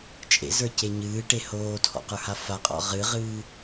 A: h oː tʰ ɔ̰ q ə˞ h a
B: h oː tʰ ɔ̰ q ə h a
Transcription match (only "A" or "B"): A